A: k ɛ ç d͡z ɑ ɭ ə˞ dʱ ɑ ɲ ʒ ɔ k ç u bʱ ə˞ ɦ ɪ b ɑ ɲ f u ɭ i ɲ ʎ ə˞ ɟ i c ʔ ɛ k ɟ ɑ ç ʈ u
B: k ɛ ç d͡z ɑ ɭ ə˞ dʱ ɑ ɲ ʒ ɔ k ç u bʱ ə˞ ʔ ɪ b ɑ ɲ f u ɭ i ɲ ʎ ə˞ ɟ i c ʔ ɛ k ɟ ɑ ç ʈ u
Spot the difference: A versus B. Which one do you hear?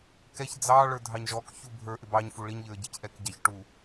B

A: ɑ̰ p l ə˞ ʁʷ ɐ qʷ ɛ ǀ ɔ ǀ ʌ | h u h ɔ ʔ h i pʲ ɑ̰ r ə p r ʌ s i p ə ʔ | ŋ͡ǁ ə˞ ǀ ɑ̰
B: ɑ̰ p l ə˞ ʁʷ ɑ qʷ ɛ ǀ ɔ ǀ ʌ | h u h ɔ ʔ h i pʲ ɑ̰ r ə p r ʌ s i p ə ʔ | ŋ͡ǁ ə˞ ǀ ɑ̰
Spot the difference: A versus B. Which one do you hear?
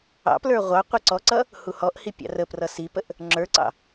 B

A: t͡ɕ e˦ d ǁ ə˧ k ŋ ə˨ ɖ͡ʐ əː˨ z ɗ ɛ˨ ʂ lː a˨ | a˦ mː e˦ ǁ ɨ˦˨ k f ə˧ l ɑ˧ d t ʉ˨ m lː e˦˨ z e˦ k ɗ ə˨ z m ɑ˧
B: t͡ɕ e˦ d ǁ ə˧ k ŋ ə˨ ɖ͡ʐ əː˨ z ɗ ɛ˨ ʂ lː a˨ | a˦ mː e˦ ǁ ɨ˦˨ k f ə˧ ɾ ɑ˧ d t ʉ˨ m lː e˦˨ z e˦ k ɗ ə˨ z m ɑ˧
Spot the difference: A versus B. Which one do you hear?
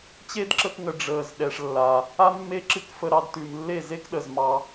B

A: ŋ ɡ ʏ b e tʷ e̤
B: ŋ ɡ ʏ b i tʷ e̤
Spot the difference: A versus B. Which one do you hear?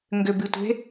B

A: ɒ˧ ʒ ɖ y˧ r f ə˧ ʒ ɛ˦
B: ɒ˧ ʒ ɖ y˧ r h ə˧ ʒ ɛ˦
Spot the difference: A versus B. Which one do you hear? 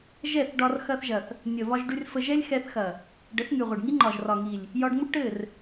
A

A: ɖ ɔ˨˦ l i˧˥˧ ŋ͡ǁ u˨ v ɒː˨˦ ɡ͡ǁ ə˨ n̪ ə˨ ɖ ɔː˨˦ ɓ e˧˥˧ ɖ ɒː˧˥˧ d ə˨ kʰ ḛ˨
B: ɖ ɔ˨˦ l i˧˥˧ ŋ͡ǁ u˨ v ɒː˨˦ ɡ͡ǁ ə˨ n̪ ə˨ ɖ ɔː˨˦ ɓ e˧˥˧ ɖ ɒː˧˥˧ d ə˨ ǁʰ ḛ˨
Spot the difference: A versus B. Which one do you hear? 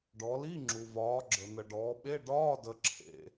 B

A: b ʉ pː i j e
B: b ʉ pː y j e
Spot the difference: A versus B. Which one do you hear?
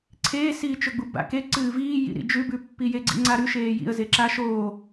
A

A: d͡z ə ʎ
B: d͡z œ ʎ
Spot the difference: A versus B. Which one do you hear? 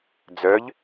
B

